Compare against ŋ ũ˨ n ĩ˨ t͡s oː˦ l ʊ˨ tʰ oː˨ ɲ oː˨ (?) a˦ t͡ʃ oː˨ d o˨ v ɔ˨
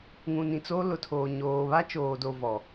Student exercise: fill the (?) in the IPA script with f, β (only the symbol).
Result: β